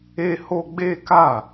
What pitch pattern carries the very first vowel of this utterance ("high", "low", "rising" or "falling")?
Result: high